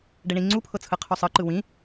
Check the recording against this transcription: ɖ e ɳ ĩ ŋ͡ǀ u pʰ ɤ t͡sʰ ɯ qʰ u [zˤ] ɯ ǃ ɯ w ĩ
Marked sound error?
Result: yes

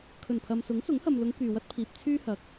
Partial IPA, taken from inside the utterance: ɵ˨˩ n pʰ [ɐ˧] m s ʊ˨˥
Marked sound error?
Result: yes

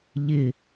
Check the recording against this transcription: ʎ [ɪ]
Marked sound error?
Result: no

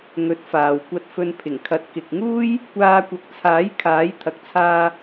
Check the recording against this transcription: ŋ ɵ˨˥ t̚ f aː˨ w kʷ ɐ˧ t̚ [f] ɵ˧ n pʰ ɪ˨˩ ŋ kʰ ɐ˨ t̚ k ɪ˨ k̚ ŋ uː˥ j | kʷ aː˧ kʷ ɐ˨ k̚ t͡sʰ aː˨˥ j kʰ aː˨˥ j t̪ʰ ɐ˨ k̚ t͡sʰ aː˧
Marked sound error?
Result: no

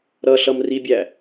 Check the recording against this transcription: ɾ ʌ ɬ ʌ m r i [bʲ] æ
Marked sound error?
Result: no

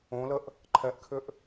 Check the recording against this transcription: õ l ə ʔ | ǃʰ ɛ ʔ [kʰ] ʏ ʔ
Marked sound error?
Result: no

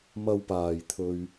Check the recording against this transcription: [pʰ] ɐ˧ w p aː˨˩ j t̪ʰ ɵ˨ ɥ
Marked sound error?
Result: yes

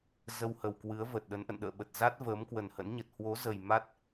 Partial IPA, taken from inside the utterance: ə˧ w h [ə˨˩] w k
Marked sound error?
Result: no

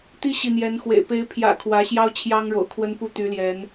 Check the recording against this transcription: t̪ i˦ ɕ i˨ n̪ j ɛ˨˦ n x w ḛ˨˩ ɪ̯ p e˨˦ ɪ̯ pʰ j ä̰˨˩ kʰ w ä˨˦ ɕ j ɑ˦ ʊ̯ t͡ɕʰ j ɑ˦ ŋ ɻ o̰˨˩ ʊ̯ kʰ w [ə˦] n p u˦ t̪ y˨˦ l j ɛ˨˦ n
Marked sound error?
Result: no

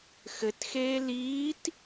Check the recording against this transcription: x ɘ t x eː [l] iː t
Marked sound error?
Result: no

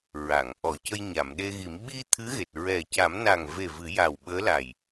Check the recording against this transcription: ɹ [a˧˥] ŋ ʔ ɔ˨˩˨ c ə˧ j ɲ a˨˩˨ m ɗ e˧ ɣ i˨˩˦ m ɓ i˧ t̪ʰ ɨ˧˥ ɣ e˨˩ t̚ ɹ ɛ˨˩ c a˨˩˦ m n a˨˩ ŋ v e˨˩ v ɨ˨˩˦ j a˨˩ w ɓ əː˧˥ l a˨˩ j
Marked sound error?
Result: yes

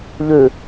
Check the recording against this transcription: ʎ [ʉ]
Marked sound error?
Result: no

